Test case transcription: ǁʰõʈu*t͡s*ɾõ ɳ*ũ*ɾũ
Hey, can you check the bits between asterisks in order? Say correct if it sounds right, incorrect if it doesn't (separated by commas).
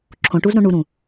incorrect, incorrect